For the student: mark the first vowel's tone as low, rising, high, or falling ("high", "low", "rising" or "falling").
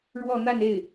falling